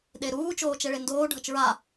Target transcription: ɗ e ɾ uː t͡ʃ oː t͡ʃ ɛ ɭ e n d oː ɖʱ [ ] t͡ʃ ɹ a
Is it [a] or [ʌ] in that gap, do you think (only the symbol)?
ʌ